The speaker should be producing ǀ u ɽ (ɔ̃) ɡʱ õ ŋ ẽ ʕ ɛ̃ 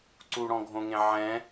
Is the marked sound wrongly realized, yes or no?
no